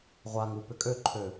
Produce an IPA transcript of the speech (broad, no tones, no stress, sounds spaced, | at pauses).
ʁʷ a ŋ u p ʏ kʼ ø ǃʰ ø